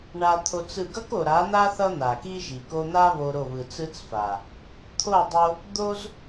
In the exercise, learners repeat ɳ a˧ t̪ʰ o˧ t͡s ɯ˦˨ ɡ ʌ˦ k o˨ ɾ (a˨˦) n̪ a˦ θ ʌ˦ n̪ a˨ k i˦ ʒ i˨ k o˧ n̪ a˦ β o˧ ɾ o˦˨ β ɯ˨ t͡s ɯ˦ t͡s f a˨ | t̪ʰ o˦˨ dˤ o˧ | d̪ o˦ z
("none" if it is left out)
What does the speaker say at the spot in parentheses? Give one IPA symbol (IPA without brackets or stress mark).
a˨˦